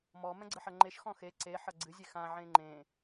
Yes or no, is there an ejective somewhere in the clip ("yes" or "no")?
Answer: no